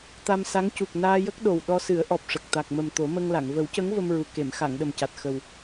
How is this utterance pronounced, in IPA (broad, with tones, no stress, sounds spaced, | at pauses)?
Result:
t̪ a˧ m s a˧˥ ŋ c u˨˩ k̚ n aː˧ j ə˦˥ k̚ ɗ o˨˩ w ɗ ɔ˧ s ɨ˨˩˦ ə̯ ʔ ɔ˨˩ p̚ ʂ ə˨˩ k̚ t̪ a˨˩ k̚ m ə˨˩ m t̪ o˨˩˦ m ə˧ ŋ l a˨˩˨ ŋ v ə˨˩˦ w c ə˧˥ ŋ v ə˧ m ɹ u˨˩ k e˨˩˨ m x a˨˩˨ ŋ ɗ ə˨˩ m c a˨˩ t̚ x ə˨˩ w